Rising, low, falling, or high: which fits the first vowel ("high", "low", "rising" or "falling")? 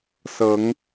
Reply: rising